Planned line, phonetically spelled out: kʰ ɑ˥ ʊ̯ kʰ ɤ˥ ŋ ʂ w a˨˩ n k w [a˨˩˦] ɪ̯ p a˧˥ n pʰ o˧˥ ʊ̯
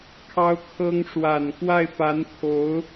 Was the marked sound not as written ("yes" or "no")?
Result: yes